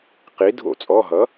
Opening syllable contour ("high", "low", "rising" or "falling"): rising